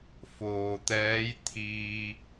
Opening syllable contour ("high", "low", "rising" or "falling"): low